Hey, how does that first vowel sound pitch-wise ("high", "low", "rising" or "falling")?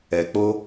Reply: low